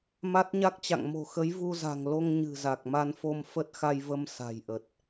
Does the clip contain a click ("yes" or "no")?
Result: no